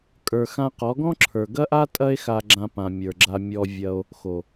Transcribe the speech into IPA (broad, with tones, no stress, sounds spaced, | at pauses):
kʼ ə˞˨ x ã˧ q ɔ˨˦ ɡ ɔ̃˦ ǁʰ ə˞˨ ɡ ɐ˦ ʔ a˦ tʼ ɐ˦ e̯ x a˧ ɡ͡ǁ ã˧ p ã˨ mʲ ə˞˨ ɡ͡ǁ a˧ mʲ ɔ˧ vʲ ɐ˧ o̯ | x o˨